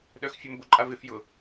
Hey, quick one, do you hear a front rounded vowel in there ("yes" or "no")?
yes